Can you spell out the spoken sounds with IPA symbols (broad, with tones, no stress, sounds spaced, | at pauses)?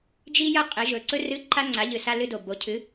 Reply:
d͡ʒ i˥ j ɐ˥ qʼ i˩˥ ʒ ɵ˨˩ ǀ ɵ˥ r ɨ˧˥˧ ǃ a˥ ŋ͡ǀ a˩˥ ʎ ɨ˨˩ s a˧˥˧ l ɨ˧˥˧ d o˨˩ b o˩˥ cʰ ɨ˩˥